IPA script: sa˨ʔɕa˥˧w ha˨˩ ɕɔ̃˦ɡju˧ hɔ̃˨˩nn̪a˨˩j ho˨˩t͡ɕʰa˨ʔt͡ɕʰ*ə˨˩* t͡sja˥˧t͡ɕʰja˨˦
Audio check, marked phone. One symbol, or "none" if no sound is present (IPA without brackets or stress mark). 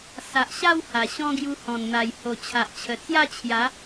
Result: ə˨˩